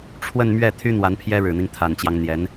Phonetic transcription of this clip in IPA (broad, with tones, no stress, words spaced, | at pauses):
ʈ͡ʂʰwə˥˧nmɥɛ˥˩t̪ʰy˥ n̪wa˧˥npʰjɛ˥ɻɻ̩˨˩n̪i˦ŋ t̪ʰa˨˩nt͡ɕjɑ˦ŋ n̪jɛ˧˥n